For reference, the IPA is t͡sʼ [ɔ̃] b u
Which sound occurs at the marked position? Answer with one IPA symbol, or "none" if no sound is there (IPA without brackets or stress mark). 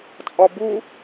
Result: ɔ